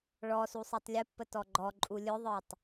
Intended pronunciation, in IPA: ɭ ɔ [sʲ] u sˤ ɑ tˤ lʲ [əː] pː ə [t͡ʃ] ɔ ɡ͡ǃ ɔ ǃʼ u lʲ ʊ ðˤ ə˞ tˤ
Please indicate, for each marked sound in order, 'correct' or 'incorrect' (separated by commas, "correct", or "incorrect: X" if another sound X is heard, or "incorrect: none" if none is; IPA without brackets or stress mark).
incorrect: s, incorrect: ə, incorrect: t